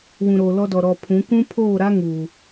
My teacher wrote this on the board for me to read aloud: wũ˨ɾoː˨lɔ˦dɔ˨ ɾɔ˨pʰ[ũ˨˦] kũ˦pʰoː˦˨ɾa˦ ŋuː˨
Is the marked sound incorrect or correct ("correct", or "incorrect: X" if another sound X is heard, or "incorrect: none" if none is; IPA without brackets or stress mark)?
correct